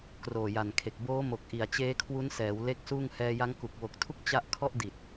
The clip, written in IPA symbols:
kroː˨˩ja˨˩nkʰe˨˩k̚ boː˦˥mo˨˩k̚ ʔi˨˩a̯t͡ɕeː˦˥kʰwu˦˥nsɛː˩˦w le˦˥k̚ suː˥˩ŋ hɛː˧ja˦˥ŋ ku˨˩k̚ wo˨˩k̚tʰu˦˥k̚ t͡ɕa˥˩ʔ kʰɔ˥˩ʔdi˨˩t̚

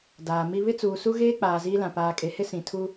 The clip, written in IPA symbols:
daː˨ mi˦ βɪ˦t͡suː˨su˦ɣeː˦ k͡paː˨ziː˦lã˨ paː˨kʼe˨hɪ˦ sĩ˨ tʰu˦

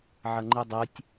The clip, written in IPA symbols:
ʕɐŋ͡ǃɨdˤɨtʲ

